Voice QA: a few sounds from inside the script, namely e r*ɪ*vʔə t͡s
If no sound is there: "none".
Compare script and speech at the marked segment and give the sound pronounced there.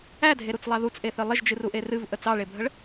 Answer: ɨ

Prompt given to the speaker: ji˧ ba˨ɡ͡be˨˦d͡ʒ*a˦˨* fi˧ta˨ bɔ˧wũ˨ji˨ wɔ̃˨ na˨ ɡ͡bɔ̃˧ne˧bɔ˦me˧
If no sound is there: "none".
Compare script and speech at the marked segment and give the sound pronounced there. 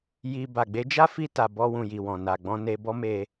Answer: a˦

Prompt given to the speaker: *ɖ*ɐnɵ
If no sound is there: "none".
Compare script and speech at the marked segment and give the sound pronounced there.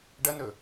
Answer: ɖ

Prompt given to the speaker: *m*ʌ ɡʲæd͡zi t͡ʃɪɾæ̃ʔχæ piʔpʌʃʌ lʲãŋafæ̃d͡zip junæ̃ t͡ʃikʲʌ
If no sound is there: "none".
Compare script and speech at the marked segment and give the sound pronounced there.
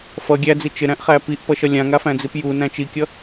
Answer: f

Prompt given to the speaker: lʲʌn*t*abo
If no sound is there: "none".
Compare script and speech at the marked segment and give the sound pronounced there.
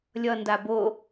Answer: d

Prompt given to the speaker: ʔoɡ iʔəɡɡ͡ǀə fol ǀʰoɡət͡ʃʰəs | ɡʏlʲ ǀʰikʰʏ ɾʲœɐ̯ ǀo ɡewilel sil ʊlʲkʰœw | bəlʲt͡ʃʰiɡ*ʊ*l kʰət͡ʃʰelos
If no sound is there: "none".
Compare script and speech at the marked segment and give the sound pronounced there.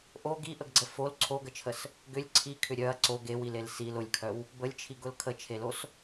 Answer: ʊ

